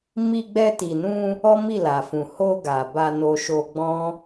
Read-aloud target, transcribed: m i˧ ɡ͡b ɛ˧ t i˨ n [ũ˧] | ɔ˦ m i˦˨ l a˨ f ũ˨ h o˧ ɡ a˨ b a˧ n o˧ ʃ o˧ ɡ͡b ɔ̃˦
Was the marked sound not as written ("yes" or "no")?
no